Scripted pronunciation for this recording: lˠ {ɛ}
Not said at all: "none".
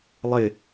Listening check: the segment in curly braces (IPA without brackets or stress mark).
ɪ